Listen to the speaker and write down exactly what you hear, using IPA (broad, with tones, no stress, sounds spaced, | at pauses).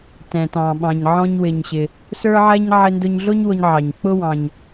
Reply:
t ɛ̃˩ t ɑ̃˩ ɓ ɑ̃˩ ɲ ʕ ɔ̃˧ ɲ w ɪ˩ ɲ ɕ ɪ˩ | s ə˞˥ ʕ ɛ˥ ɲ ʕ ɪ˧ n d ʊ˧ ɲ ɮ ʊ˥ ɲ w ʊ˧ ɲ ʕ ɑ˩ ɲ k͡p ʊ˥ w ɑ̃˩ ɲ